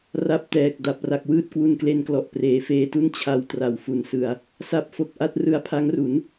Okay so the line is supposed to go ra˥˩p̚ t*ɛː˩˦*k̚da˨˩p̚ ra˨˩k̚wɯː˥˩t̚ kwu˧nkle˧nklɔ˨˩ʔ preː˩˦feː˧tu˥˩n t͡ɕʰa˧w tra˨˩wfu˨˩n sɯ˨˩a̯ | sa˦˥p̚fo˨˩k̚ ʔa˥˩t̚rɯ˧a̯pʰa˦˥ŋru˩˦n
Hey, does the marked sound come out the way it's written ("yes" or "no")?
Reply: no